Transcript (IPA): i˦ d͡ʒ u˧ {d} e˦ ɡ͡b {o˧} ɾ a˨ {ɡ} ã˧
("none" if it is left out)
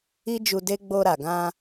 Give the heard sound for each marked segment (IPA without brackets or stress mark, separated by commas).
d, o˧, ɡ